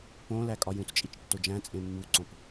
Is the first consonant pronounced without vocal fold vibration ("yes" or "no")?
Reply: yes